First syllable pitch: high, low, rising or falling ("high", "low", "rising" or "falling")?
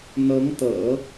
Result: rising